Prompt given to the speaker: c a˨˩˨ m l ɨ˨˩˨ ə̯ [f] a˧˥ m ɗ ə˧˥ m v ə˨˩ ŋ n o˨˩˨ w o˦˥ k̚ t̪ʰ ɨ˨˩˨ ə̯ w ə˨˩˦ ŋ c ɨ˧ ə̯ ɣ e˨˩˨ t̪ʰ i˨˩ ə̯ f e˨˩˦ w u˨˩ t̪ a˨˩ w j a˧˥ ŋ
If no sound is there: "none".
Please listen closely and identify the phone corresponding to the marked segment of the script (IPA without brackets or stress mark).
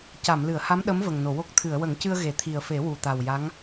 h